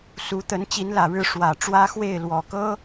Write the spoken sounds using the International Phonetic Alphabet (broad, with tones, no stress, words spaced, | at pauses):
su˧˥t̪ə˧˥n t͡ɕi˧˥nlä˨˩ɻɻ̩˥˩ ʂwä˨˩ ʈ͡ʂwä˥xwe˥˩ɪ̯lwɔ˨˩kɤ˥